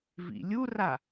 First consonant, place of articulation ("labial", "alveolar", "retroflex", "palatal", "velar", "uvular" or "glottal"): labial